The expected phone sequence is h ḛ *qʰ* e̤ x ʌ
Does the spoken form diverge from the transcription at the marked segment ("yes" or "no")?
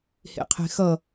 no